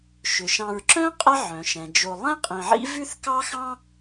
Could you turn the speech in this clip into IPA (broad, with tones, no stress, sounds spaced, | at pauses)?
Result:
ʃ ʏ˩ ʃ ɑ̃˨ ɹ ǁ œ̃˥ qʼ ɛ˦ ʕ œ̃˩ ʃ ɛ̃˩ d͡ʒ o˨ lˠ ɛ̃˥ qʼ ĩ˨ ʕ ḭ˥ v ʉ˥ θ k ɑ˥ x ɑ̃˥